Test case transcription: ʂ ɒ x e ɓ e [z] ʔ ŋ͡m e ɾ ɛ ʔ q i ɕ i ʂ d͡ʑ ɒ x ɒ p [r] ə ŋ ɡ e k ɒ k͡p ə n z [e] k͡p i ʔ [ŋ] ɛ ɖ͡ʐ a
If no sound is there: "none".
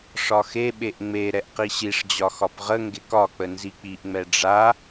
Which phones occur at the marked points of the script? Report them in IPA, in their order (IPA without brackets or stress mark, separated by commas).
none, ʁ, i, ŋ͡m